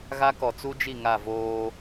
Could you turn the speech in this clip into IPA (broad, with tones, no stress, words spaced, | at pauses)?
ɣa˦kɔ˨ t͡su˦d͡ʒi˦˨ ŋa˦˨voː˦